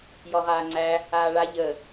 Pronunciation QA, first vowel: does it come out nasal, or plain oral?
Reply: oral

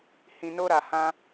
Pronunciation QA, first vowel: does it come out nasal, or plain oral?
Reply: nasal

